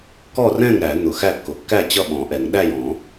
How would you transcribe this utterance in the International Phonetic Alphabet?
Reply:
k ɔ˥˩ r ɛ̃˥˩ ŋ ɾ æ˨˩˦ n̪ ʊ˨˩˦ x æ˥˩ kː ʊ˨˩˦ kː æ˥˩ t͡ɕ ʌ˥˩ ɓ ɔ̃˨˩˦ ʔ ɛ˨˩˦ ŋ ɗ æ˥˩ j ɔ̃˨˩˦

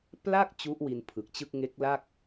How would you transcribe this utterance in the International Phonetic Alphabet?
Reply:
p l a˥˩ k̚ t͡ɕ u˦˥ ʔ w i˧ n pʰ ɯ˨˩ k̚ t͡ɕ ɯ˥˩ k̚ ŋ e˦˥ k̚ l a˥˩ k̚

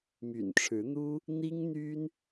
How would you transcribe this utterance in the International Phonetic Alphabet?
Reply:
m y̰˨˩ n ʈ͡ʂʰ ɻ̩˨˦ n̪ u˦ | n̪ i˦ ŋ n̪ y˦ n

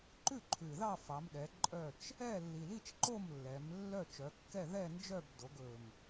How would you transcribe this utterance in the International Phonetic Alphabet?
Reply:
ǃ ʉ˥˨ ǃʰ ʉ˨˩ ð ɑ˥˨ f ɑ˩˧ m ɗ ɛ˩˧ ǃʼ œ˥˨ t͡ʃ | ɛ˥˨ lː i˨˩ l i˥˨ t͡ʃ ǃ o˥˨ m lː ɛ˩˧ m lː œ˥˨ t͡ʃ œ˩˧ kː ɛ˥˨ ð ɛ˥˨ n d͡ʒ œ˥˨ b d o˩˧ ɡ ɵ˨˩ m

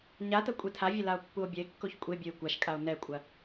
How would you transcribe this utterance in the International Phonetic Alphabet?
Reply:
ɲ a t ɐ kʷʼ e tʰ a vʲ ɐ l a o̯ pː u o̯ bʲ ɐ e̯ kː o ç kʷʼ e bʲ o e̯ kʷ a ʃ kʼ a o̯ n ɛ kʷʼ ɐ

